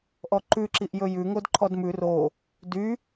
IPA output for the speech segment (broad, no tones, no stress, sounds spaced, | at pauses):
ʔ ɔ ǃ ʉ ǁ i ʔ j ɵ j ʉ ŋ o d ǃʰ ɔ d m ʉ r o | d y